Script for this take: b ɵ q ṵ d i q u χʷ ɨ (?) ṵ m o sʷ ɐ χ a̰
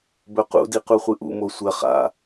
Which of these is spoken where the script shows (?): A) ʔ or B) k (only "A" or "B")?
A